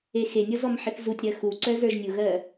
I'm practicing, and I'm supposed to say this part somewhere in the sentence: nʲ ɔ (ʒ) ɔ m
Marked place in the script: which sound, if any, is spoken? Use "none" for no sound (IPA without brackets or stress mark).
z